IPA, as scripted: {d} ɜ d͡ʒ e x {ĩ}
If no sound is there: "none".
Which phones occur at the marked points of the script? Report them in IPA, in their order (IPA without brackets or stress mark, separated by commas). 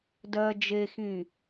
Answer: d, ĩ